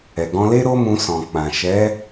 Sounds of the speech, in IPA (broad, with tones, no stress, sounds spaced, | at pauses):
ɛ˨ ɡ ɔ̃˧ l e˦ ɾ o˦ m ũ˧ s ɔ̃˨ k͡p ã˨ ʃ ɛ˨˦